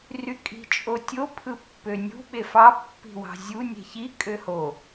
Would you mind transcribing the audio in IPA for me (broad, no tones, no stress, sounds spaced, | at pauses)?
r y kʼ i̤ t͡ʃʼ o tʲ o pʰ ɯ pː ø nʲ ṳ ɓ e f ɑ pː i̤ w ɑ̤ zʲ u nʲ e̤ ç i kʼ ø h o